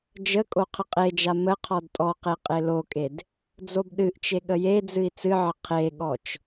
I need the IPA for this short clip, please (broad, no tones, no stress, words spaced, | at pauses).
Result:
d͡ʒə kʼoqʰəqʼed͡ʒa mə qʰɔdtʼɔqe qʼelokʼed | d͡zobɗɨʔt͡ʃe ɠəjed͡zɨi̯ t͡sɨʕə qʰeɠɔt͡ʃ